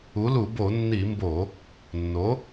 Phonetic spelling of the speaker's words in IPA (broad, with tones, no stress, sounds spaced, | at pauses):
u˩˥ l u˧˩˧ b o˧˩˧ nː i˧˩˧ m b o˧˩˧ | nː o˩˥